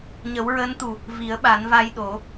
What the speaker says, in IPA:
ɲə˨˩˦wɹəː˧˥nt̪u˨˩ | vi˨˩˦ə̯ɓa˨˩˦nva˧jɗo˨˩˦

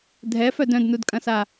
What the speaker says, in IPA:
dʱɛfœd œ̃dnudkʼɐ̃sa

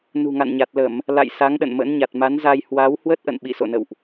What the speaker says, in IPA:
nṳ˨˩ŋa̰˧˨nɲa˨˩t̚ lə˧˩˨m | la̰˧˨j sa˨˦ŋɗə̰˧˨nmə̰˧˥n ɲa˨˩t̚ma˨˦nza˧j hwa˨˦w hwə˦˥t̚ʔə̰˧˨n ɓḭ˧˨so̰˧˨nə̰˧˨wʔ

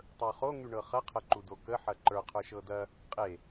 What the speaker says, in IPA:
tˤə˞χo ŋyɳɤχɐ qʰɐǃudokə ħɐǃə˞ qʰə˞ʃɤdɐ | qʼe

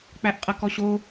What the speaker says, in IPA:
k͡pæʔqʼɐkɔɕo

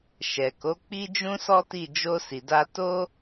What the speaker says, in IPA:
ʃɛ˨ko˨˦ k͡pi˦d͡ʒũ˦sɔ˦ti˦˨ d͡ʒo˧ si˨da˧ to˦

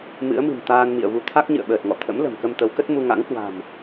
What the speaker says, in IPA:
mɨ̰˧˥ə̯mɨ̤˨˩m t̪aː˧nmḭ˧˨ə̯vu˨˦ t̪ʰa˦˥k̚ɲɨ̰˧˨ə̯ɓəː˨˩t̚ŋɔ̰˧˨ t̪ʰə̰˧˥m lə̤˨˩mkə˧m t̪ə˨˦wkə˦˥t̚ mu˧ŋa̰˧˥ŋkwa̤˨˩m

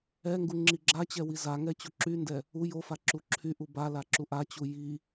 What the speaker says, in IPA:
ɛŋɡu ŋ͡ǁiɡ͡ǁat͡ɕɛ wizaŋɛ t͡ɕuǁyndɛ | u jofa ǁuǁʰyʔu bala ǁuʔat͡ɕu ji

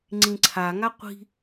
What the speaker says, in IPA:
ŋ͡ǀĩǀʰa ŋaqʷi̤

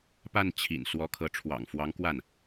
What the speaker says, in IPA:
pa˥˩n t͡ɕʰḭ˨˩n swɔ˧˥kʰɤ˧˥ ʈ͡ʂʰwɑ̰˨˩ŋfwɑ˧˥ŋ kwa˥˩n

